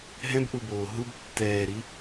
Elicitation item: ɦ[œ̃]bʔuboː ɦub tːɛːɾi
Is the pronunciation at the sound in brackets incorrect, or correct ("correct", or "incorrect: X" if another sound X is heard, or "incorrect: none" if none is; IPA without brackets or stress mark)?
incorrect: ɛ̃